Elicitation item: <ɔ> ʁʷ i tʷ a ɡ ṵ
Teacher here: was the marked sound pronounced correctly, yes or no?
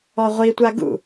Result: yes